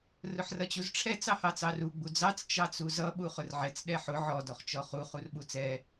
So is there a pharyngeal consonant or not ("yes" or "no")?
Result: yes